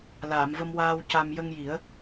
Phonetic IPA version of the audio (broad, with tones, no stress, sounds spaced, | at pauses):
l aː˨˩˨ m v ə˧ m w aː˧ w c a˧ m j ə˧ ŋ j i˨˩˦ ə̯